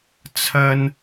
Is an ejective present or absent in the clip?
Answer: absent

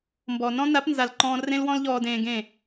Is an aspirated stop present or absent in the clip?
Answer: absent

